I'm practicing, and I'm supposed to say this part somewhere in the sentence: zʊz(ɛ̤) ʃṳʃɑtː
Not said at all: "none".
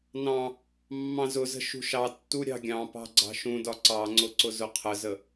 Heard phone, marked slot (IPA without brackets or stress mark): ə̤